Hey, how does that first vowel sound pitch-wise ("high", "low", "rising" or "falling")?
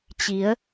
rising